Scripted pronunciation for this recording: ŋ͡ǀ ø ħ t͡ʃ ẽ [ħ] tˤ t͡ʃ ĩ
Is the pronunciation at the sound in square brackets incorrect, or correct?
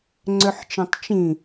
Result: incorrect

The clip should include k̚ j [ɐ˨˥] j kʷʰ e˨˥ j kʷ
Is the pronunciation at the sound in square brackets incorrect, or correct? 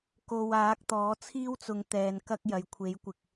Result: incorrect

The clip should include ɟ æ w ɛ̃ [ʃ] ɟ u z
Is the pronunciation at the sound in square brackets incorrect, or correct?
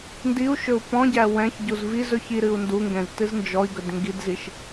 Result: incorrect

